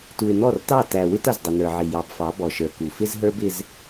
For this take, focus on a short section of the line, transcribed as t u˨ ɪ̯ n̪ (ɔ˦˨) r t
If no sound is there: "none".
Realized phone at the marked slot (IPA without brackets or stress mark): ɔ˦˨